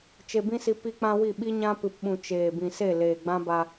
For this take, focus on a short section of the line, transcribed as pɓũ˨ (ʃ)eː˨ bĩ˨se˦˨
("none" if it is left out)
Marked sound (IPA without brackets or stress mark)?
t͡ʃ